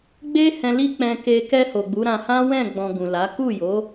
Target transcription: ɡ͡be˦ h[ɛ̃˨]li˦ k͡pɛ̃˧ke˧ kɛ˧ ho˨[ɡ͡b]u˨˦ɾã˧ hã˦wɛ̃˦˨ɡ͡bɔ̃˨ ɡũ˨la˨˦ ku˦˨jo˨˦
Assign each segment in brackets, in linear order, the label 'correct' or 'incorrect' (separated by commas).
incorrect, correct